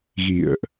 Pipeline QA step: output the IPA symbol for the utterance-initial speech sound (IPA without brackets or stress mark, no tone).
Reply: ɣ